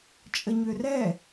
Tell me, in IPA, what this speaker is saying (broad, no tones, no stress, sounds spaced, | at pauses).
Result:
t͡ʃʼ ə ɲ ø r ɛ